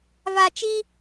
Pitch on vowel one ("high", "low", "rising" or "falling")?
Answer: low